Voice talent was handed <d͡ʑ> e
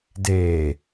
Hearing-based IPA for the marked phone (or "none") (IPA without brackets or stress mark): d